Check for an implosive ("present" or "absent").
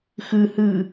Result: absent